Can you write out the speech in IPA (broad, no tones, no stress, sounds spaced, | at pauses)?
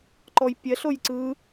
ǃ ɔ j pʲ ɛ ɬ o j ǀ ɯ